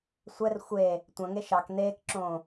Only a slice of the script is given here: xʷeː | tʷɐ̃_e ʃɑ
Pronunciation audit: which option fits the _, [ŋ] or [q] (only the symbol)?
ŋ